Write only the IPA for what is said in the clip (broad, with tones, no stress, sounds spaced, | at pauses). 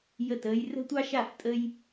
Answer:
j ə˥˩ t əː˥ j r ə̤˥ tʷ ɑ˥ ʃ a˥˩ f tʼ ə˥ j